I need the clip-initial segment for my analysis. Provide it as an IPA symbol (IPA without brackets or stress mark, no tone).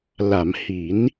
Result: l